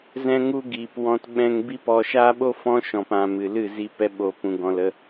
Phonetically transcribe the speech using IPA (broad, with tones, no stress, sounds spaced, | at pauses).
z ɛ̃˦ ŋ u˦ ɡ iː˨ p w ɔ̃˧ t ɓ ɛ̃˧ ŋ b i˦ p ɔ˧ ʃ aː˦ ɓ o˦ f ɔ̃˦ ʃ ɔ̃˨ p ã˨ m ɨ˨ l ɨ˦˨ z i˧ p ɛ˧ ɓ o˨ p ũ˨ ɡ ɔ̃˨ l ə˧